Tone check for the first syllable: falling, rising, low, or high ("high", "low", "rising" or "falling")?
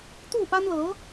falling